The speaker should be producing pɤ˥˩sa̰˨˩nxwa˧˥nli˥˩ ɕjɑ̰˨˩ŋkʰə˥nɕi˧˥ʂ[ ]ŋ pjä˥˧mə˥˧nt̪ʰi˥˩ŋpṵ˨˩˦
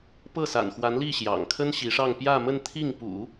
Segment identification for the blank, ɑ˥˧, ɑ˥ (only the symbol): ɑ˥˧